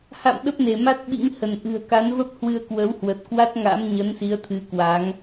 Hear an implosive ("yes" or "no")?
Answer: yes